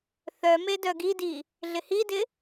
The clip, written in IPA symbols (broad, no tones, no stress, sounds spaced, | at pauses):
θ œ m e d œ ɡ i d i | ɮ ɪ h i d ɪ